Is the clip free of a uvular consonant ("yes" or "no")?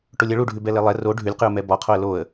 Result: no